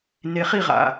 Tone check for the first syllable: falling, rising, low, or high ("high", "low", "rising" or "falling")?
low